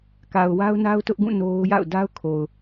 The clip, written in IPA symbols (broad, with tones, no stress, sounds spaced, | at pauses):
k a˨ ʊ̯ w a˦ ʊ̯ n a˦ ʊ̯ t ʊ˦ ʔ ɡ ũ˦˨ n o˦ ʊ̯ j a̰˦˨ ʊ̯ d a˦ ʊ̯ kʰ o˨ ʊ̯